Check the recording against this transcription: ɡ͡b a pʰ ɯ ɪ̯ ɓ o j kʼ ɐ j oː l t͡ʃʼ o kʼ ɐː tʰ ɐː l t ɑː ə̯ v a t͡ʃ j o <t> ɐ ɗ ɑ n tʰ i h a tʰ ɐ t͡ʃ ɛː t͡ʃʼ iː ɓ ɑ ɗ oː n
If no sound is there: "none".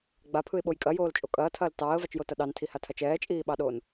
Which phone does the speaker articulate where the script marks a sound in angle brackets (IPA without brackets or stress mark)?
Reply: t